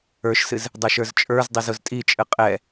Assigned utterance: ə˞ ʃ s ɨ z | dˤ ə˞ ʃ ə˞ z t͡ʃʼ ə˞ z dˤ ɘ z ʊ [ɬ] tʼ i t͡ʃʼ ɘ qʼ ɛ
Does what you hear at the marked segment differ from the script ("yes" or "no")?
yes